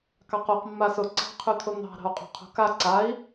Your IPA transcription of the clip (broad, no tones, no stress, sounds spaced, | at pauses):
k ɑ q o q mː a s ʊ ǀ ɑ̤ qʰ ʉ t̪ʰ ʊ n̪ ɑ̤ ɾ ɑ̤ u̯ qʼ o̤ qʰ o̤ k a ǀ a i̯